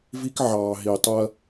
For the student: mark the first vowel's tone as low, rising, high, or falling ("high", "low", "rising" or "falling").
high